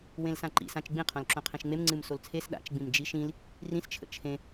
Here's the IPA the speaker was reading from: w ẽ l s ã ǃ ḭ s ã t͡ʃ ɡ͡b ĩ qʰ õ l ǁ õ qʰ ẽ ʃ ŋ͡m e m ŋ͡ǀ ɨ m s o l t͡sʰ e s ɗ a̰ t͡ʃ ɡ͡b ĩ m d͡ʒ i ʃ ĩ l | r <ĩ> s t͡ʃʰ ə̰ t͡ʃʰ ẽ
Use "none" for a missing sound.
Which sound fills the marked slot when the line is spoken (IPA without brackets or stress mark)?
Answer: ĩ